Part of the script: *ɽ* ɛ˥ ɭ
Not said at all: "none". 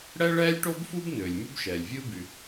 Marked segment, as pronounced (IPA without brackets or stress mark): ɽ